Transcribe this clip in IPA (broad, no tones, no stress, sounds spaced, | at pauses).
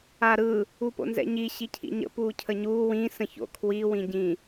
a ɾ ɯ | u p o̰ n z ɛ̰ ɲ i ɕ i cʰ ḭ ɲ ə̰ p uː cʰ ə ɲ uː w ĩ s ə̃ ç o̰ kʰ w i w ĩ ɟ ĩ